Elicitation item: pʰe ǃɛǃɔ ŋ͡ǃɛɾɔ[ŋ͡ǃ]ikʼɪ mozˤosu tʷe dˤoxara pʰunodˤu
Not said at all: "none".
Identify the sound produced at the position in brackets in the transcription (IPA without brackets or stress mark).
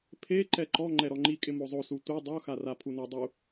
ŋ͡ǃ